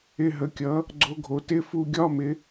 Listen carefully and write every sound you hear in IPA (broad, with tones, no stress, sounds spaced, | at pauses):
ɪ˧˥˧ ɦ ə˩˧ kʲ ʌ˩˥ | ɡ͡ǀ o˧˥ ɡʱ o˩˥ t ɪ˧˥˧ f u˧ ɡʲ ɒ˧˥˧ m ɪ˩˧